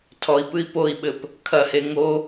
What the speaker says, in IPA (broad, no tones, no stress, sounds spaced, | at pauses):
tʰ ɔ i̯ p ɨ i̯ p o i̯ ɓ ɘ p | kʰ ɐ h e ŋ o